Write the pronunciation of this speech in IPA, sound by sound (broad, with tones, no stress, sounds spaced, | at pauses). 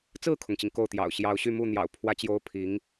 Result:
t͡s ɹ̩˥˩ kʰ ʊ˩ ŋ t͡ɕ i˩ ŋ k o˥˩ ʊ̯ t̪ j ɑ̰˨˩ ʊ̯ ɕ j ɑ˧˥ ʊ̯ ɕ y˥˧ m u˥˩ n̪ j ɑ̰˨˩ ʊ̯ pʰ w ä˥ t͡ɕ j o˥ ʊ̯ pʰ i˧˥ ŋ